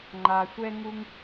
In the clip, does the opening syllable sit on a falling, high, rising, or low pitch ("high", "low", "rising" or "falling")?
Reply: low